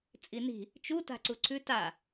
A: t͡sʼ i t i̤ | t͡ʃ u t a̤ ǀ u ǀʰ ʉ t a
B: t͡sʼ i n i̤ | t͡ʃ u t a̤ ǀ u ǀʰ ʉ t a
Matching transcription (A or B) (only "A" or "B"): B